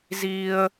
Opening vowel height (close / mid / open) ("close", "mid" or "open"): close